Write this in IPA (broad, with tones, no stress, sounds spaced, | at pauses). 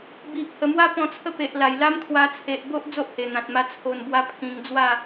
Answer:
b i˨ ʔ h ə˨˩ m w a˦ p ɔ̃˧ t͡sʰ ə˦ p e˨ ʔ l a˨˩ j l a˦ m kʰ w a˧ t͡sʰ e˨ ʔ b o˦ ʔ d͡z o˦ ʔ h e˨˩ n̪ ã˨ t̚ m a˧ t͡sʰ o˨˩ n b w a˧ pʰ ĩ˧ ŋ d͡z w a˥˧